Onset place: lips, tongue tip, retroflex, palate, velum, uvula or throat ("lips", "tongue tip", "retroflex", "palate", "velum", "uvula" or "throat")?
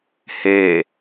throat